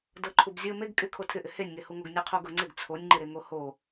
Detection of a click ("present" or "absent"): present